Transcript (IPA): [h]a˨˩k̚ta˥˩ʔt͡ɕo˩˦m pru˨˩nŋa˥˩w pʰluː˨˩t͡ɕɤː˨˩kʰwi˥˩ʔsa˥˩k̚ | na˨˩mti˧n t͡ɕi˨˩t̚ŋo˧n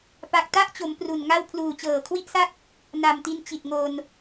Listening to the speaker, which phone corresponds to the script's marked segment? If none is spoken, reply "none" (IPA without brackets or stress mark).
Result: p